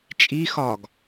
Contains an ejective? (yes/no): yes